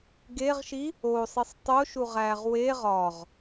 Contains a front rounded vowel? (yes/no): no